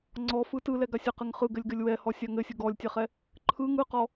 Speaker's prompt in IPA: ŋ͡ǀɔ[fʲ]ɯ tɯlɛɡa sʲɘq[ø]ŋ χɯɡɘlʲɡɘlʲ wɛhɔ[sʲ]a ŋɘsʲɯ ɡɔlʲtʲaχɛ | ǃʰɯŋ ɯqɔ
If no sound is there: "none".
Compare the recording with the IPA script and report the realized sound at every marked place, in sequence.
f, ɘ, sʲ

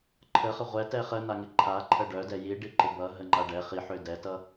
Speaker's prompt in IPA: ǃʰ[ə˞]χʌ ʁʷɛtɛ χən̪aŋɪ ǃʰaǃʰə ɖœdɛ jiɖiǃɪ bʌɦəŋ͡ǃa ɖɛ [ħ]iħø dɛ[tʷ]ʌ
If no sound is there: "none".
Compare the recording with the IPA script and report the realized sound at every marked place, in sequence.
ə, χ, t

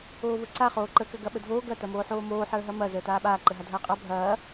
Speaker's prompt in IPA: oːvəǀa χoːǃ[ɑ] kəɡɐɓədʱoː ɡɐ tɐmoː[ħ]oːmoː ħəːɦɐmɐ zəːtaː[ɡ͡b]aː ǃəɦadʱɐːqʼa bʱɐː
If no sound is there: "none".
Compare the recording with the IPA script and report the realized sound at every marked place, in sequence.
ə, ħ, ɓ

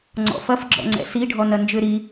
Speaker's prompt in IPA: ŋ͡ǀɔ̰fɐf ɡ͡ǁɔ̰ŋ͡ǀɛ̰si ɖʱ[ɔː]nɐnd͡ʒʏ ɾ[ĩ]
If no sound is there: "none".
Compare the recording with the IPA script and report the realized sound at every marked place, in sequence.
ɔ, i

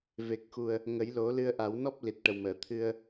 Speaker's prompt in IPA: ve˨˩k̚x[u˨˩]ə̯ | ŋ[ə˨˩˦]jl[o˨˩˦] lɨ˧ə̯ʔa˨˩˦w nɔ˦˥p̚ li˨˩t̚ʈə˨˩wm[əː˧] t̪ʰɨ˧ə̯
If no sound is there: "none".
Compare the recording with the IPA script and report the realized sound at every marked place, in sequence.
u˨˩, ə˨˩˦, o˨˩˦, əː˨˩˨

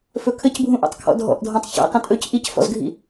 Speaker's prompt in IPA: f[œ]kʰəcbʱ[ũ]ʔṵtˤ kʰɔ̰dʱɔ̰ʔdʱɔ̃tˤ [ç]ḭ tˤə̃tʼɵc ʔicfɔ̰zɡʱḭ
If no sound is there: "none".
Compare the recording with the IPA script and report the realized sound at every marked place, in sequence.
ɵ, ũ, ç

